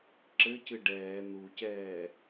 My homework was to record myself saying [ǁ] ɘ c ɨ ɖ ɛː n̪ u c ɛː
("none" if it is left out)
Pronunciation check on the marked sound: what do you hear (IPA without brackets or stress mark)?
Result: ǁ